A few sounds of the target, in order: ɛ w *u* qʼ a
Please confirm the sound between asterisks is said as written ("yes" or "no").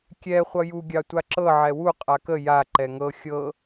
yes